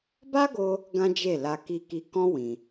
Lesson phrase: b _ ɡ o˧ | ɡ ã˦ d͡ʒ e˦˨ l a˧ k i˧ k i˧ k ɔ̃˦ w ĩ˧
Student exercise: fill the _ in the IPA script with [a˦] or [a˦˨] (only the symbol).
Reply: a˦